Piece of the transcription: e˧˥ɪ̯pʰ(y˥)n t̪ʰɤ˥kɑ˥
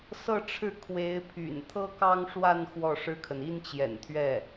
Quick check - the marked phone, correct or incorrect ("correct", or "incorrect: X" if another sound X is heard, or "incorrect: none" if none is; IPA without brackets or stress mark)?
incorrect: y̰˨˩